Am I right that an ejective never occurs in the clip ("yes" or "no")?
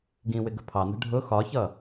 yes